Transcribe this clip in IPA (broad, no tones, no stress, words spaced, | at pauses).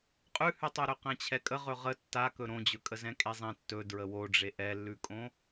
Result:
qʼʉhʉtˤoɾɵ qɛ̃t͡ɕʰɛkʼə ʁɵʁə tːa kɵɾõd͡ʑɵkʼə zɛ̃kʼezˤɛ̃ tːɵ dɹəwoɖ͡ʐe ʔɛlːʉkʼõ